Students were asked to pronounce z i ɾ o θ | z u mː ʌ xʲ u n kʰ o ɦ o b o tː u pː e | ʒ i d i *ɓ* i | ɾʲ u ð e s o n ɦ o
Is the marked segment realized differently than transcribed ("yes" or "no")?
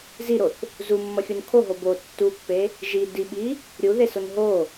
no